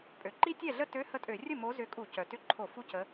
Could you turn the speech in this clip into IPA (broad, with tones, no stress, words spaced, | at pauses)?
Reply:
pʼø˩ ǃi˦˥tʲɛ˥˩ɮə˦˥ tø˧˥˧ hə˥˩tʼø˧˩˧ rʲə˥˩mo˨˦ zʏ˨˦kʼu˧˩˧ cœ˩tʏ˧˥˧ǃʰo˧˩˧ fu˦˥cə˨˦